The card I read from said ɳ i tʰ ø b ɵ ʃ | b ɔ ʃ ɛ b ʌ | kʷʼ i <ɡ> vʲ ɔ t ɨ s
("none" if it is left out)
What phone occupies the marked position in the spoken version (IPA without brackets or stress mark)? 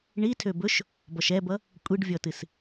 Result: ɖ